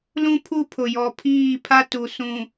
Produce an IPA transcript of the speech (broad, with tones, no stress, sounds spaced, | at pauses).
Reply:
l ũ˦ pʰ u˦ pʰ ʊ˨ j ɔ˨ pʰ iː˦˨ pʰ a˦ t u˨ s ũ˨